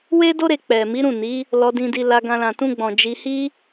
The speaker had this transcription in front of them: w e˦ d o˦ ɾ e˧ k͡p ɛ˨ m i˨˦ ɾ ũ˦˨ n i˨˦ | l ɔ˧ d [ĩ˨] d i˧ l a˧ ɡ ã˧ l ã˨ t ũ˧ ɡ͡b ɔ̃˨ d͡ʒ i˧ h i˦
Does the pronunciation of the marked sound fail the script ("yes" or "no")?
yes